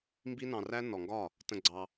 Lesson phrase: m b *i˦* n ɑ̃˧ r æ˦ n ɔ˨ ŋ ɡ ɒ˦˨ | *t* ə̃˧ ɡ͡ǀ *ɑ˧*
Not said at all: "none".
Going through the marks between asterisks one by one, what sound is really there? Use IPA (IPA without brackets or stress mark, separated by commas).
i˦, t, ɑ˧